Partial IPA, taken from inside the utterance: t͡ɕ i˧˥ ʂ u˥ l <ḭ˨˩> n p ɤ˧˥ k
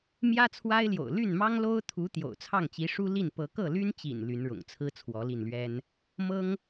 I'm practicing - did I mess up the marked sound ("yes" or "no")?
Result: yes